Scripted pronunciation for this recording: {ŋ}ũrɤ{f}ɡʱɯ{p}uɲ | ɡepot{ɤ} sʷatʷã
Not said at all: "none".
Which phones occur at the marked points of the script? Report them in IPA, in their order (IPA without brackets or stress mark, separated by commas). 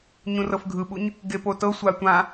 ɲ, f, ɓ, ɤ